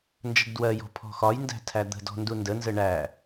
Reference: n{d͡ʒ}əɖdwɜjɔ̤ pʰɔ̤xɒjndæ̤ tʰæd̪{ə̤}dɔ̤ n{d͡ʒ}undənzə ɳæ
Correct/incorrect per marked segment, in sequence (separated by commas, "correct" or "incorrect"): correct, correct, incorrect